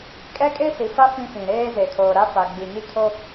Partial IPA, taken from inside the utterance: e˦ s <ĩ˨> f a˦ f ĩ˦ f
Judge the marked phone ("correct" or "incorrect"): incorrect